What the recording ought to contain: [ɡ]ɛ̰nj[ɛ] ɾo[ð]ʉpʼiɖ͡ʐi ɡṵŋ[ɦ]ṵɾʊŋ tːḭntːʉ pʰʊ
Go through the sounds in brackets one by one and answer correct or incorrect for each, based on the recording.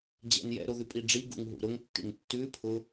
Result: incorrect, incorrect, correct, correct

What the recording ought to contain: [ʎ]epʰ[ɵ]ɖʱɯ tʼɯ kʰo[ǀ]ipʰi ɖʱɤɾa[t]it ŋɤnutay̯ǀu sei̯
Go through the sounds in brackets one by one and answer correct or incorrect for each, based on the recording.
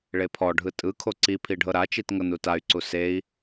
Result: incorrect, incorrect, correct, incorrect

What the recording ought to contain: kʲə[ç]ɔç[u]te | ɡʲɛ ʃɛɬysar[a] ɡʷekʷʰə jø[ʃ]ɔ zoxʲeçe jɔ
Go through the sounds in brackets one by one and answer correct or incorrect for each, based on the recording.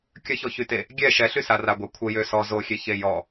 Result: correct, incorrect, correct, incorrect

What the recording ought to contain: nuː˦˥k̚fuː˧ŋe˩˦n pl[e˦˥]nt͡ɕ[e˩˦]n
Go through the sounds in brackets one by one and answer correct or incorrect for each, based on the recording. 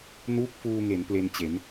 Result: incorrect, correct

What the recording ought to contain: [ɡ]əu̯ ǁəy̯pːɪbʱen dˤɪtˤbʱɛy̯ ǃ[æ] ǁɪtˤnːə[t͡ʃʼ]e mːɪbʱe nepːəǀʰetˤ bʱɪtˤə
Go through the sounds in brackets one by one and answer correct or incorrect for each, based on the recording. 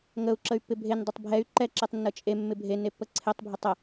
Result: incorrect, incorrect, correct

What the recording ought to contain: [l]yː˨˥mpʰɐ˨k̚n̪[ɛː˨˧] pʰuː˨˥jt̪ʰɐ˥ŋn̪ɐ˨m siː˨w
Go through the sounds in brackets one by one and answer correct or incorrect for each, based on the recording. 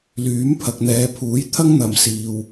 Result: correct, correct

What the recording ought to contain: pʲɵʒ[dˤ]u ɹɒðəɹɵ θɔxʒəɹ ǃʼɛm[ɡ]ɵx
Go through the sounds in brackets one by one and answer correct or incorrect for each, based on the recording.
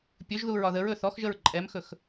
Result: incorrect, incorrect

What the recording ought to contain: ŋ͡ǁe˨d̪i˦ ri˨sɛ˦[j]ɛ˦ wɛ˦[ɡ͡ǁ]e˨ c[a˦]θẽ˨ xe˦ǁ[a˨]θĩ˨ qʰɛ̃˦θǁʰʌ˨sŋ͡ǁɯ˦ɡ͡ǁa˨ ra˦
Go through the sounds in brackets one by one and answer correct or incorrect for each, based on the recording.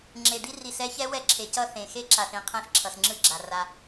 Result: incorrect, incorrect, incorrect, correct

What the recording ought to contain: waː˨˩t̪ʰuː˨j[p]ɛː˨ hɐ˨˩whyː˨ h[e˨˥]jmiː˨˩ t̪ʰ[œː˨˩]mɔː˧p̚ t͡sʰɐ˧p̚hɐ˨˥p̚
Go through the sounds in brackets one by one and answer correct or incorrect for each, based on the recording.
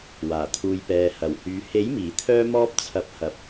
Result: correct, correct, incorrect

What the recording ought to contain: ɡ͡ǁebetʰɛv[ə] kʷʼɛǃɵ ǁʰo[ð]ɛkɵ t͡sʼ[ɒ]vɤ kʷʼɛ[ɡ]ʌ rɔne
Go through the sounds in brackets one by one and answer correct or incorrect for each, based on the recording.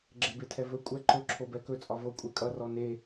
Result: incorrect, incorrect, correct, incorrect

